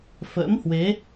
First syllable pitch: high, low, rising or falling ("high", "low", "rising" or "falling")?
rising